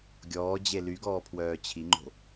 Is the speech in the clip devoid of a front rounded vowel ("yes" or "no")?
no